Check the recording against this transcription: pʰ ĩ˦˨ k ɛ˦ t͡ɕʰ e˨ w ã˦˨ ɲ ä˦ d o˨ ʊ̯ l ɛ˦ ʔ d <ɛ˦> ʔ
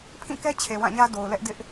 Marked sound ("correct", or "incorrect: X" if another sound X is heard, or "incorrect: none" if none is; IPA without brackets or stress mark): incorrect: ɪ˦